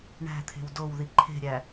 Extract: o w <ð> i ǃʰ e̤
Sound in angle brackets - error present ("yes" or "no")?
no